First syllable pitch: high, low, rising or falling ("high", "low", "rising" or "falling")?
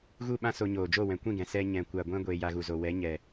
falling